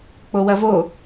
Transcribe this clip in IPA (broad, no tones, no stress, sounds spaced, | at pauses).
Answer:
k͡p o w ɐ v o